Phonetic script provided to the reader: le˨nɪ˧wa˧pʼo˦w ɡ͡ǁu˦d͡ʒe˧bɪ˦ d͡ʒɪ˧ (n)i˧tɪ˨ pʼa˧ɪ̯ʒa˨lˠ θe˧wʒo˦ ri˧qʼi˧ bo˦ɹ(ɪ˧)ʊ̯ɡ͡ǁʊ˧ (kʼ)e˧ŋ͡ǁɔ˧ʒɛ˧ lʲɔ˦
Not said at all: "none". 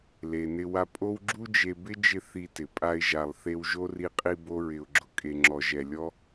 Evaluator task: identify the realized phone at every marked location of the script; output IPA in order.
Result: θ, ɪ˧, kʼ

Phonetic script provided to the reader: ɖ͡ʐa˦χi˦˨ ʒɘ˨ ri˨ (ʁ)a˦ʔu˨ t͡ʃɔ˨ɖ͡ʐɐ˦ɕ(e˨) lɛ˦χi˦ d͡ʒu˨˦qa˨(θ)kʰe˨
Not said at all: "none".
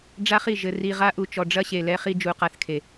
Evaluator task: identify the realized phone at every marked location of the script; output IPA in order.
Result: ʁ, e˨, θ

